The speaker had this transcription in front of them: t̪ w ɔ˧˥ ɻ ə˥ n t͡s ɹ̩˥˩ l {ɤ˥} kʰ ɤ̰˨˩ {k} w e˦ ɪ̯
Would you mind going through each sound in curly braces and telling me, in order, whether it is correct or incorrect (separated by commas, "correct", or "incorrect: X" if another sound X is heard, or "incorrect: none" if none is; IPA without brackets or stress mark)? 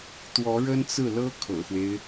correct, incorrect: x